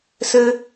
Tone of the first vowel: high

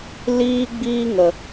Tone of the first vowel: high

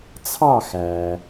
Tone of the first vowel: falling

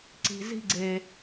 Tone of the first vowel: low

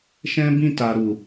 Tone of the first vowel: high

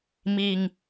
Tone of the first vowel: low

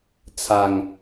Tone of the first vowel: low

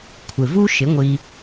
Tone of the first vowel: low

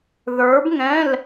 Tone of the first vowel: rising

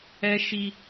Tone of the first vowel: high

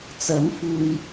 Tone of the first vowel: rising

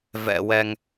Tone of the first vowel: low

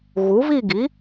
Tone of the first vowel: rising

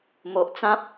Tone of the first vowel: low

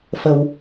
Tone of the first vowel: low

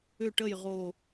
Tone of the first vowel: falling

